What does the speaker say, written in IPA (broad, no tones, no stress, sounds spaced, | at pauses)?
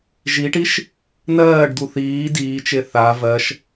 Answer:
ʒ i ʈ i ʃ | n ɜː ɖ d̪ u θ iː d iː t͡ʃ e θ a v ɜ ʃ